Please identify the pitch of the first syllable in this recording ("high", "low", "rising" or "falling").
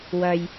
low